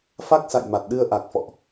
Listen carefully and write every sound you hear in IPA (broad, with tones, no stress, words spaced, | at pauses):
fa˦˥k̚sa̰˧˨jma˨˩t̚ɗɨ˧ə̯ ʔa˨˩k̚fɔ̰˧˨ʔ